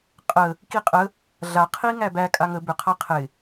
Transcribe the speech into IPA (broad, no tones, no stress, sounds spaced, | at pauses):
qʼ ə | k i qʼ ə | ɮ a qʰ i ŋ æ b æ kʼ a ŋ ə b ʏ qʰ a qʰ ɪ